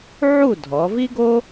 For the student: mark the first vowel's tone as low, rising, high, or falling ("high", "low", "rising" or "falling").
falling